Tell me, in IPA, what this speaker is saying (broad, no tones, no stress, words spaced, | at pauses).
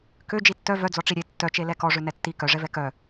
kø d͡ʒitːœ vœd͡zɔ ʈ͡ʂiɾʲe tːœt͡ʃe lɛkɔʐø nɛtːi kœʐɛvɛ kœ